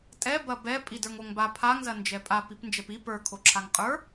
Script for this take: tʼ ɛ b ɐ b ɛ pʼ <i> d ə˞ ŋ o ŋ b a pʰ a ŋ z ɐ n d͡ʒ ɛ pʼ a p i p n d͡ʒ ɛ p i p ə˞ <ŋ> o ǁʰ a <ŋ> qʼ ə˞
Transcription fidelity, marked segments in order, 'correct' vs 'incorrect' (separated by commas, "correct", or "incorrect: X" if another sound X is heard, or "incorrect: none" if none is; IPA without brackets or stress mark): correct, incorrect: kʰ, correct